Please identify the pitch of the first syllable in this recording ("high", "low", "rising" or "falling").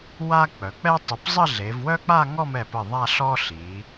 high